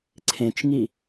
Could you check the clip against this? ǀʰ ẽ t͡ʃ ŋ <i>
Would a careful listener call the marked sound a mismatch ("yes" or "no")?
no